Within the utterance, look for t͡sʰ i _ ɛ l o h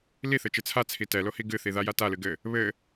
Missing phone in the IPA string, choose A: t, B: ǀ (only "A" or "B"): A